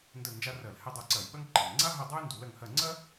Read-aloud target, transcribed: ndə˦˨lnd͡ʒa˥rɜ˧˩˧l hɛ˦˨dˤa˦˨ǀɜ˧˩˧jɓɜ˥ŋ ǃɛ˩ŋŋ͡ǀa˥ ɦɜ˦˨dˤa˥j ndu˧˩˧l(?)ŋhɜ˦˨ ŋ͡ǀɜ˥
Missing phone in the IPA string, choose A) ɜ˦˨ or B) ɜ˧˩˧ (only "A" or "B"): A